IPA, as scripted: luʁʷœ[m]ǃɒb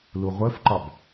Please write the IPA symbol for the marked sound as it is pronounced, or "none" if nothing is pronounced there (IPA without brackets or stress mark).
f